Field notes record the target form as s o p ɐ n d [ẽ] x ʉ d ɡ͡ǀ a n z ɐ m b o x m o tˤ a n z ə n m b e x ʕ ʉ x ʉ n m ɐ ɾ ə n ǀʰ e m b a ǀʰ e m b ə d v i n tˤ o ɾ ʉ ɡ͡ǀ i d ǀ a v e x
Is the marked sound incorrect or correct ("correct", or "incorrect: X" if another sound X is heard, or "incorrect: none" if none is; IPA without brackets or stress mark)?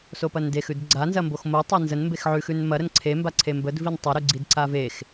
incorrect: e